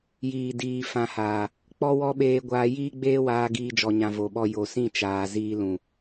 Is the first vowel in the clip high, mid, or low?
high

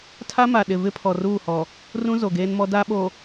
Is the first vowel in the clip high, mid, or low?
low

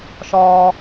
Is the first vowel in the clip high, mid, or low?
low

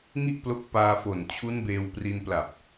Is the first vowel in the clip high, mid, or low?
high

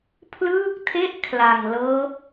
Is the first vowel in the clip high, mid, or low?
high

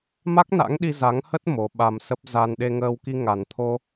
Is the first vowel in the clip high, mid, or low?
low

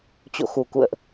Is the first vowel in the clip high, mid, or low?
mid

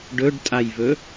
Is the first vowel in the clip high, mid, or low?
mid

